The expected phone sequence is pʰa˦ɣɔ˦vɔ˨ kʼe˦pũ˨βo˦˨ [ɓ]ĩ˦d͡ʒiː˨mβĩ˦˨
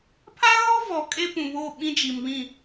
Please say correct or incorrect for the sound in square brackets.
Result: correct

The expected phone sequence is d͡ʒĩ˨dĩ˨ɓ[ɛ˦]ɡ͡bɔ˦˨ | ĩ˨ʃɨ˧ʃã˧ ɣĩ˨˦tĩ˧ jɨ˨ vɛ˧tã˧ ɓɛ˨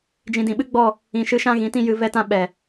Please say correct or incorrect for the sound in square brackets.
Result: incorrect: ɨ˦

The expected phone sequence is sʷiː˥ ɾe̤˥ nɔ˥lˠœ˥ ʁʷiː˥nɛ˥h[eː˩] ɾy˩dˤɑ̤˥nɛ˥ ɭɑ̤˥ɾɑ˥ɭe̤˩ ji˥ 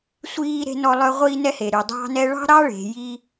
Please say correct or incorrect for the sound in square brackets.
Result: incorrect: e˩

